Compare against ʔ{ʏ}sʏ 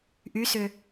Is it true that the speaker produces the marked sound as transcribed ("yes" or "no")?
no